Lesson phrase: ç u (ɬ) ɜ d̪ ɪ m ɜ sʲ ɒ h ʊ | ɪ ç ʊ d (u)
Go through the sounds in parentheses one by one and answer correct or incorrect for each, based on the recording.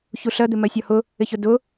correct, incorrect

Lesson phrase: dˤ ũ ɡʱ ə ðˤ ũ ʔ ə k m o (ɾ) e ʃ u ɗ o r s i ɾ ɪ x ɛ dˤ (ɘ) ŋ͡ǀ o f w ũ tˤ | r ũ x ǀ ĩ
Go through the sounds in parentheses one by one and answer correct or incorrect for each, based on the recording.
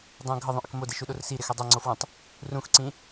incorrect, incorrect

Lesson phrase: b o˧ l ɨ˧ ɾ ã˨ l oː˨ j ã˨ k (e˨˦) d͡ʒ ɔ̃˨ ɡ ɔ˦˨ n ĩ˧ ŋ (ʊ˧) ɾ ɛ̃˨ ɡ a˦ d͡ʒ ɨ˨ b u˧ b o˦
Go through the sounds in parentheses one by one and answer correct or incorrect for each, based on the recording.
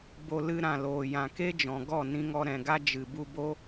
incorrect, incorrect

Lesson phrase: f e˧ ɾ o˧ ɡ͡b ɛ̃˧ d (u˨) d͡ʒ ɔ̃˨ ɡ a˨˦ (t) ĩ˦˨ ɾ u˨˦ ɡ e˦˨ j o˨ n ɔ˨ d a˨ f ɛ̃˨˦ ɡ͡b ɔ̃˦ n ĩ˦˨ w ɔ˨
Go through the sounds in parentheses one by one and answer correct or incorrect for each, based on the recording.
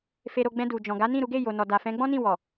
correct, incorrect

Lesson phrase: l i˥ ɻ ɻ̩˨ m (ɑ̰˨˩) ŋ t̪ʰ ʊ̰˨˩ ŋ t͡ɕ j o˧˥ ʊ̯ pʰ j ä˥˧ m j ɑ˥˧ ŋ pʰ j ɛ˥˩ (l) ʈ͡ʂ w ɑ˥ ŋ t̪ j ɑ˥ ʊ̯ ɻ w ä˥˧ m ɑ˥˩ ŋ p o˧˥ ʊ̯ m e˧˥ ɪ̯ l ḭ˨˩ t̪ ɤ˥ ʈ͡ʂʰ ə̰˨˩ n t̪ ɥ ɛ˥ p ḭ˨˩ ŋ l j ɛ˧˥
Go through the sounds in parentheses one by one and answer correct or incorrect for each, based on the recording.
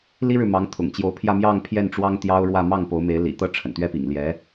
incorrect, incorrect

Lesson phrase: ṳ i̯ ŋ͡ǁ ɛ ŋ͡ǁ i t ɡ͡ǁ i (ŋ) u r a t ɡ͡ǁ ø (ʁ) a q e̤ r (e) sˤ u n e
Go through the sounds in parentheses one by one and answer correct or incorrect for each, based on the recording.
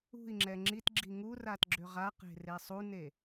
correct, correct, correct

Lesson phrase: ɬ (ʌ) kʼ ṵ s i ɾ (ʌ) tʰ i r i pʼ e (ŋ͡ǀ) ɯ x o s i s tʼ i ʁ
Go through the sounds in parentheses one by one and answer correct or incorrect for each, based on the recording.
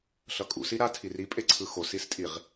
correct, incorrect, incorrect

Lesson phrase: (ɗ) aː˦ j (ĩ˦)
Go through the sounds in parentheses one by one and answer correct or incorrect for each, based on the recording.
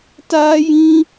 incorrect, correct

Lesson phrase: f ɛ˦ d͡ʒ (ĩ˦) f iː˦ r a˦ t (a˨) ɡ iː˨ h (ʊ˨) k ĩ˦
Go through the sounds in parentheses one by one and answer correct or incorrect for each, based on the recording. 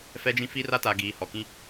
correct, correct, incorrect

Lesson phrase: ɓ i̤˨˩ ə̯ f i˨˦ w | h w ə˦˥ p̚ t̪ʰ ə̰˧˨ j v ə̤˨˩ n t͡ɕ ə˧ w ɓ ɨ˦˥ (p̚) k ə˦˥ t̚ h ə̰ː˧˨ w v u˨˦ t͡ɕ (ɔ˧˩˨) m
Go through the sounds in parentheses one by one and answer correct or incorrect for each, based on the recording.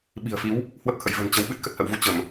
incorrect, incorrect

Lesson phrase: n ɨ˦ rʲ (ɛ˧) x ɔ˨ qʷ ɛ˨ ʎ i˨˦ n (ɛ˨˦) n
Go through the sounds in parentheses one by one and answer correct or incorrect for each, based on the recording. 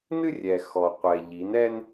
incorrect, incorrect

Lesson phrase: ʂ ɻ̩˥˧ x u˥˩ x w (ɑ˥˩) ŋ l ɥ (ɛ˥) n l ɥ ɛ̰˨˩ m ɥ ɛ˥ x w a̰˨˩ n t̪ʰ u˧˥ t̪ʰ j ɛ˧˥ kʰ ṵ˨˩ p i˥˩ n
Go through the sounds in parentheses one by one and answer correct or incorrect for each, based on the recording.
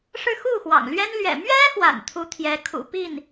incorrect, correct

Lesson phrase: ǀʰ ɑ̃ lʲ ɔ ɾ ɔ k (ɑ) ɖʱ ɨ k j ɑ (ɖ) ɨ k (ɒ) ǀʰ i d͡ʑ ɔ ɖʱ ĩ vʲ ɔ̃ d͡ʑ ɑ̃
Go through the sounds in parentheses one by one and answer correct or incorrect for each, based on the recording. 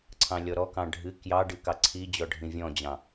incorrect, correct, incorrect

